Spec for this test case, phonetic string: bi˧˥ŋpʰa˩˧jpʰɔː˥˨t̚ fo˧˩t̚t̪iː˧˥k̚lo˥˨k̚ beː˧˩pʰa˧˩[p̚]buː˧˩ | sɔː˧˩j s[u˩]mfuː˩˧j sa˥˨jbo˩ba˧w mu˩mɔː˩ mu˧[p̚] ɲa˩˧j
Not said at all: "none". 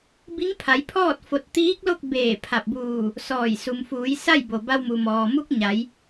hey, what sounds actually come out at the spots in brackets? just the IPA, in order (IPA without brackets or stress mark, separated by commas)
p̚, u˩, k̚